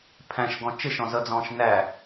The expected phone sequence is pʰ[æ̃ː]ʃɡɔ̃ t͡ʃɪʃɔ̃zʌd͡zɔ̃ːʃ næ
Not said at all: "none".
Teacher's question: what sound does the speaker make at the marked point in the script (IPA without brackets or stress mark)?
æ̃